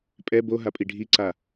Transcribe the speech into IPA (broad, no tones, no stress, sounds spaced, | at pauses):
pʼ ɛ b o ɦ a pʼ i ɖʱ i ǀ a